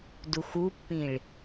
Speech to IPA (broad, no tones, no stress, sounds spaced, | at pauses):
d u x u pː ĩ ɭ